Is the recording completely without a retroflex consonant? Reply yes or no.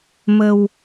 yes